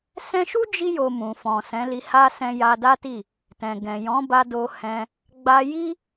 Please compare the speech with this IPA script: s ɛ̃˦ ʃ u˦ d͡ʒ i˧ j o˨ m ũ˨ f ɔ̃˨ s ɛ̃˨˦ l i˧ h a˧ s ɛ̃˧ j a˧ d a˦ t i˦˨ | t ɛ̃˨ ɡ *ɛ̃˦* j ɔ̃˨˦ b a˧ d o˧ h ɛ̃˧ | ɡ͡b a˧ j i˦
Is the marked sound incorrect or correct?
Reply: incorrect